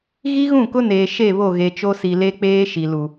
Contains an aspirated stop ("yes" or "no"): no